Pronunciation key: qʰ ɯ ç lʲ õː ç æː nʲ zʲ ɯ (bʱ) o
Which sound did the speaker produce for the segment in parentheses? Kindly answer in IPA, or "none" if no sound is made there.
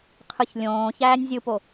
p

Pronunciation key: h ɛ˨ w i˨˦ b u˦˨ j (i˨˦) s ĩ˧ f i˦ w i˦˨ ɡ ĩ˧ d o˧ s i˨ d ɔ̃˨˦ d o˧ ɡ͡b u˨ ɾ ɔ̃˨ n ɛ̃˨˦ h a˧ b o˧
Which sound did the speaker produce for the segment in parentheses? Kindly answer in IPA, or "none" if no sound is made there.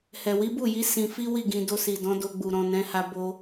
i˨˦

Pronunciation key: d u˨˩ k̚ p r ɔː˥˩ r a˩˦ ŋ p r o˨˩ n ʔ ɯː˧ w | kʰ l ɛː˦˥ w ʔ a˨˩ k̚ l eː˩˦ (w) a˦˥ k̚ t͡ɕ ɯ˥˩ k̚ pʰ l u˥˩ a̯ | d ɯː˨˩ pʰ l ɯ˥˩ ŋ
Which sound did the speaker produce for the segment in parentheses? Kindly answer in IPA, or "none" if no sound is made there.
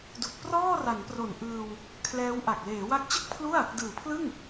w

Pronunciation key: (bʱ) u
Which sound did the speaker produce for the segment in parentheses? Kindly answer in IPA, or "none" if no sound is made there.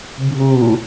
bʱ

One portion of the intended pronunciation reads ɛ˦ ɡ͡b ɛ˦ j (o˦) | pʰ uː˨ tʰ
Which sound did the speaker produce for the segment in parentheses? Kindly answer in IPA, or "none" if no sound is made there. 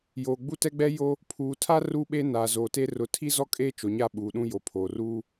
o˦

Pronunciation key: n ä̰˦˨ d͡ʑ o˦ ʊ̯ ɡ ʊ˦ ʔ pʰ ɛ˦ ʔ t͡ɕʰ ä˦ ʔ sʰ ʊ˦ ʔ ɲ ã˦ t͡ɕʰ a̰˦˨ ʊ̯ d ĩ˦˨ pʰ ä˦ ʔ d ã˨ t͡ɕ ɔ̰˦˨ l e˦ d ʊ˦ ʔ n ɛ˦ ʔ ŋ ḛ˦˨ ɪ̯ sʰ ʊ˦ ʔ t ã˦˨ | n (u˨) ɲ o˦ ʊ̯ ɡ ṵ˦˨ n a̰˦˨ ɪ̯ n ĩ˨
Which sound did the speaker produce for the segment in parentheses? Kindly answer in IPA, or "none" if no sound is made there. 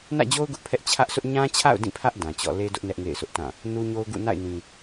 u˦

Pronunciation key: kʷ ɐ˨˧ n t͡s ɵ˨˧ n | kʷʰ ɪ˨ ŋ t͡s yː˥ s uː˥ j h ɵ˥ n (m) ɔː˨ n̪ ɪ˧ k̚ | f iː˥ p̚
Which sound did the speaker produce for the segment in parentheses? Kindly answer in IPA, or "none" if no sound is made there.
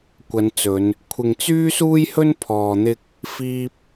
pʰ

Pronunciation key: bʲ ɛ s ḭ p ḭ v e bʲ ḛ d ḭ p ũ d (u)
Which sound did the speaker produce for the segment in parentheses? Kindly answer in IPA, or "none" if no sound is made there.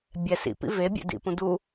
u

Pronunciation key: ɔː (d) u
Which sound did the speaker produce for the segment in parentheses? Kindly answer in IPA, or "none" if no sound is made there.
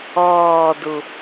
d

